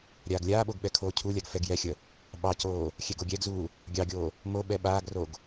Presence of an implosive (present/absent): present